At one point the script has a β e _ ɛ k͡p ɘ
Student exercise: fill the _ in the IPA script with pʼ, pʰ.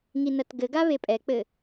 pʼ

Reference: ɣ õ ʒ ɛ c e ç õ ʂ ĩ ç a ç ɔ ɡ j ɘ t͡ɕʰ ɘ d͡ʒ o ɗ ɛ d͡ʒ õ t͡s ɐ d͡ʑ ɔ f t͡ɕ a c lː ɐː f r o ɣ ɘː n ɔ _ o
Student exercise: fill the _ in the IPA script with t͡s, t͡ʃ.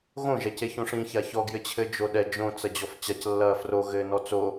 t͡s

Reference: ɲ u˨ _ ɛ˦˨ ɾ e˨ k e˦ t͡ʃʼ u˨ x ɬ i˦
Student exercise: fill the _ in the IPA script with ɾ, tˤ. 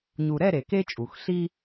ɾ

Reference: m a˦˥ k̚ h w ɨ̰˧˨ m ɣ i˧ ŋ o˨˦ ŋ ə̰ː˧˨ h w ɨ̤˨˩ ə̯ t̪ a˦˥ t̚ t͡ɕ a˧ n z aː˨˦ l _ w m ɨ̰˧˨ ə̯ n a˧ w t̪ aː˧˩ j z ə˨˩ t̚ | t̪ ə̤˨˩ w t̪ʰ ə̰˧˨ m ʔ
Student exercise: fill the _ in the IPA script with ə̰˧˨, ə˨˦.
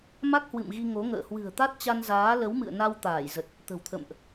ə˨˦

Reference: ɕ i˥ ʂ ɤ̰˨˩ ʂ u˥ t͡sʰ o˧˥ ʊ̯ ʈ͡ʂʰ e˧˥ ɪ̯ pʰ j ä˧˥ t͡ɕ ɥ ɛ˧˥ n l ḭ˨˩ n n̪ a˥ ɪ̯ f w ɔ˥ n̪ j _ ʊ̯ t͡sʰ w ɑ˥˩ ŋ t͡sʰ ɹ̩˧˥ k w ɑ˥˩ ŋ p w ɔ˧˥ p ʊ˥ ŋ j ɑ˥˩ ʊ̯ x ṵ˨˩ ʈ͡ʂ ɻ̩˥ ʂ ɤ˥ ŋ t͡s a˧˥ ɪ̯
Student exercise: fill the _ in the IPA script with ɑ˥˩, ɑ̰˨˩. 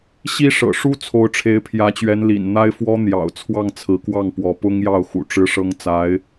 ɑ̰˨˩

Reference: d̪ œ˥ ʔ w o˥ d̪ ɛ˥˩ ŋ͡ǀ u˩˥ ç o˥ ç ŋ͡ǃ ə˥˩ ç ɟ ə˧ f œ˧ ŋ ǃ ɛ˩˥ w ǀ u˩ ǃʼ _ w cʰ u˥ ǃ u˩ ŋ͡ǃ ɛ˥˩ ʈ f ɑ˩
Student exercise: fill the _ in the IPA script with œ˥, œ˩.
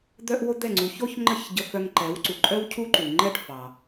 œ˥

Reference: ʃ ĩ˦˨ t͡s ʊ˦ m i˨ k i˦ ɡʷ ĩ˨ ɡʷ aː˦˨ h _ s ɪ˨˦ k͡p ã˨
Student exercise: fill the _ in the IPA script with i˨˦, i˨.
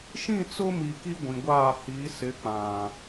i˨˦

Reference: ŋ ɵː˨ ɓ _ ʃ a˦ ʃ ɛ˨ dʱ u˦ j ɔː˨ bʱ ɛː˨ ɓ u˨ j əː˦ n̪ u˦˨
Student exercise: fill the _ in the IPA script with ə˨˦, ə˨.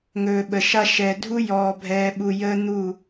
ə˨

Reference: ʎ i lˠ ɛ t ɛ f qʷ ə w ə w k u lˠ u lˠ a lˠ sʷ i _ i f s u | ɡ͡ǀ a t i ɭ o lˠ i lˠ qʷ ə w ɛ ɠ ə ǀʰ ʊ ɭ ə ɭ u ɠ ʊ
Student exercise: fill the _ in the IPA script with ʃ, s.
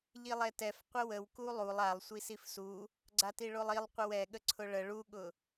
s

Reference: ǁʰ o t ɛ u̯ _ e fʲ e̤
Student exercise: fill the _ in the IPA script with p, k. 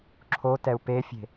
p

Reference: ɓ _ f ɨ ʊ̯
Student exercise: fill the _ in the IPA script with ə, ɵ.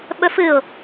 ɵ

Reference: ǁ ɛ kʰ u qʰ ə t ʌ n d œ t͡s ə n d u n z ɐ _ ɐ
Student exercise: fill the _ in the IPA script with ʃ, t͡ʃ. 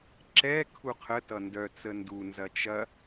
t͡ʃ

